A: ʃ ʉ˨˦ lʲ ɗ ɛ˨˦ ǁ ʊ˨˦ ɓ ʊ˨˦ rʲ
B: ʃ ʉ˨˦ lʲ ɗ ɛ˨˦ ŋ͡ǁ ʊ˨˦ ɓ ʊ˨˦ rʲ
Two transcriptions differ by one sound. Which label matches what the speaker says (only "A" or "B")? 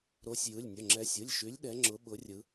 B